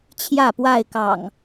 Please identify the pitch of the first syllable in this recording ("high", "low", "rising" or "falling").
falling